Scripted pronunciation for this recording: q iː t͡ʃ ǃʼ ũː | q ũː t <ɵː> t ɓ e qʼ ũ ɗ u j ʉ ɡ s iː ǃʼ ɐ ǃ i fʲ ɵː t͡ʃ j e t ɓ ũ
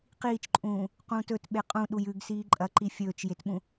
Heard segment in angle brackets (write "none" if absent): ɵ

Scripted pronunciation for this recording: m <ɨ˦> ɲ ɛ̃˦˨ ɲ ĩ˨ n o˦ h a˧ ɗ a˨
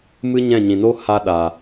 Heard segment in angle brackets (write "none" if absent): ɨ˦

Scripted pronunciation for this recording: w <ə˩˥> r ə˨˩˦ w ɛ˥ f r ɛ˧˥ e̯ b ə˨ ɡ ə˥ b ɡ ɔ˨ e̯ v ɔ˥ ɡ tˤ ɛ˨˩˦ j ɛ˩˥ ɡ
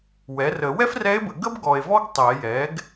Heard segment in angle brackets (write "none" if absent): ɛ˩˥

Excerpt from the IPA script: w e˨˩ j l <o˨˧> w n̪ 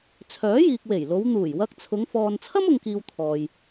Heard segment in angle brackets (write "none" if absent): o˨˧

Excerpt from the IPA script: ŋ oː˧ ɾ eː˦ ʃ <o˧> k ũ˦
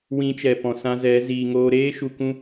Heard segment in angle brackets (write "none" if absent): u˧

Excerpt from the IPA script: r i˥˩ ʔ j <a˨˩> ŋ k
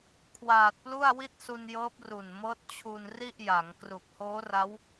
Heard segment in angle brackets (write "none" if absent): a˩˦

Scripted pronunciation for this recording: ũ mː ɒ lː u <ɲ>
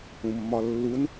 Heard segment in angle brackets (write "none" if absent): n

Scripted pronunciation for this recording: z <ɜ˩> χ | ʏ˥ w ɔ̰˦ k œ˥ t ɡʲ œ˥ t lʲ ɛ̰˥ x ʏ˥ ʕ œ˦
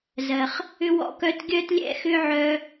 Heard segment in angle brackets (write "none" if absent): ɜ˩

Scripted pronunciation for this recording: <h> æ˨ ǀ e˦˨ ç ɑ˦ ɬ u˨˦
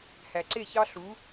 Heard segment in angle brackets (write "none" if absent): h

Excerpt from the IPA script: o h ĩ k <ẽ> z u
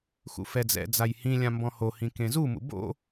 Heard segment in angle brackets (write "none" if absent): ẽ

